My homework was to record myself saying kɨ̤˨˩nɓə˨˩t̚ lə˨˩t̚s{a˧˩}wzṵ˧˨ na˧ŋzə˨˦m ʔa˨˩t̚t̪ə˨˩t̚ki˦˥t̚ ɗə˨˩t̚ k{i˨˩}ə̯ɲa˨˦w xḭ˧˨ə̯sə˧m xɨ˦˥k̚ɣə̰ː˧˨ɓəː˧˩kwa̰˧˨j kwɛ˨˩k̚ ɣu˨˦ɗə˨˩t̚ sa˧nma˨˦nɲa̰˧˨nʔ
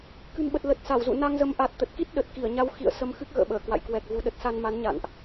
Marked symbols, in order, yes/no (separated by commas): yes, no